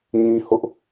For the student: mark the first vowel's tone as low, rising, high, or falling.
high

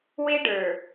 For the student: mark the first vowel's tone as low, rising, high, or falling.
high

